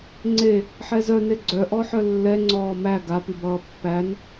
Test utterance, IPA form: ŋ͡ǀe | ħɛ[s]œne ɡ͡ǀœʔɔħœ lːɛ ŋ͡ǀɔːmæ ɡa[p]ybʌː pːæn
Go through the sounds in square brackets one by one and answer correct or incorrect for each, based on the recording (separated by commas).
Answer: incorrect, correct